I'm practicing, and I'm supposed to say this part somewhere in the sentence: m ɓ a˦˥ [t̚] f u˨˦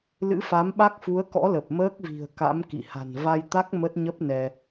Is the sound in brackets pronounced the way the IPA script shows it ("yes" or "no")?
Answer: no